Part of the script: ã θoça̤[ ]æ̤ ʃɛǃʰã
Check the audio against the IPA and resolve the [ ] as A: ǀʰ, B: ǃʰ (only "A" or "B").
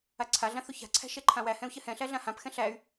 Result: A